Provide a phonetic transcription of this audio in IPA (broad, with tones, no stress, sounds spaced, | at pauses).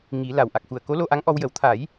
ŋ i˨˩˦ l a˨˩ w ʔ a˨˩ k̚ x u˨˩ ə̯ k o˧˥ l o˧ ʔ a˧˥ ŋ ʔ ɔ˧ w j ə˨˩˦ w t̪ʰ a˨˩˦ j